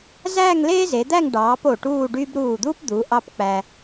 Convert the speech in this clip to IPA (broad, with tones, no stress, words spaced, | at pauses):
zæː˥˧ŋleː˥ze˩˧d̪æ˥˧ŋ ɖɑː˩˧p o˧˩ʈuː˥˧ɖy˥b ɾuː˧˩d̪uː˥pd̪u˩˧ ʔɑ˥pk͡pæ˧